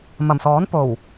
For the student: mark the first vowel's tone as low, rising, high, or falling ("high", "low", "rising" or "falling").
low